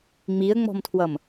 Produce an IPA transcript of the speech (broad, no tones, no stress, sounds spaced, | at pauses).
ŋ͡m i ə̯ ŋ͡m ɔ̤ m tʰ w ʌ m